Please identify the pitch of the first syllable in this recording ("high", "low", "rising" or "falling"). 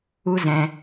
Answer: high